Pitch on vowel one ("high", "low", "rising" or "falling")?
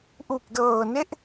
low